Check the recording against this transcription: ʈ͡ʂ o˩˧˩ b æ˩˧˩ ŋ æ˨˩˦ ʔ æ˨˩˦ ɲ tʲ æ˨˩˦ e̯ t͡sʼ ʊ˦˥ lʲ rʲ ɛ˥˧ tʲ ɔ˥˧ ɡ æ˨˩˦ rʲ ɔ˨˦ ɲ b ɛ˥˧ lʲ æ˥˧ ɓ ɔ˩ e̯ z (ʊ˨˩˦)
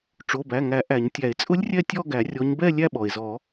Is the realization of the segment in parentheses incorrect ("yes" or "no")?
yes